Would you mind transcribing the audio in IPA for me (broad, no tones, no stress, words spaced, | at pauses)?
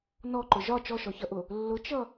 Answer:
nɔǃʊ ʒɒ t͡ʃɔʃɔçʌʔʊ | lːʊt͡ʃʌ